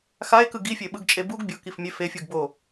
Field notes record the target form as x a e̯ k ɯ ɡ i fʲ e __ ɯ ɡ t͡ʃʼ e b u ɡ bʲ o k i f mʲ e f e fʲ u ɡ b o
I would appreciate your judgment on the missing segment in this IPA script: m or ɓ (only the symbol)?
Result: ɓ